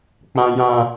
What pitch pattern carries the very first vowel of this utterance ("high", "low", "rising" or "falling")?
high